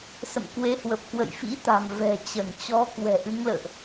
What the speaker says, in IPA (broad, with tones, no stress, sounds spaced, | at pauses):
s ə̰˧˨ m k w e˨˦ h w ə˨˩ p̚ k w ə̰˧˨ j f ḭ˧˥ t̪ a̤˨˩ m v ɛ̤˨˩ t͡ɕ ə˧˩ n t͡ɕ ɔ˨˦ k w ɛ̤˨˩ ʔ ɨ˨˦ ŋ l ə̰ː˧˨ ʔ